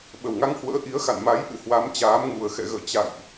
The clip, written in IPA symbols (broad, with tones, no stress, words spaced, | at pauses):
ɓə˨˩wŋa˧ŋhwə̰ː˧˥ ʔi˨˦ə̯xa̰˧˨nma˨˦j ʔɨ̰˧˨ hwa˨˦mt͡ɕaː˨˦mŋu˨˩ə̯xɛ̰˧˨ ɣə̰ː˧˨t͡ɕa̰ː˧˨jʔ